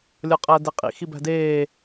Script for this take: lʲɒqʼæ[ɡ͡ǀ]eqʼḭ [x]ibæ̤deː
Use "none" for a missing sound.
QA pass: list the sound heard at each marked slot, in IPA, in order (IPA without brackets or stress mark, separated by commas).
d, x